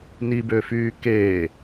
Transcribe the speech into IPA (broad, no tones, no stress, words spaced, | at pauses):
nibøfyː keː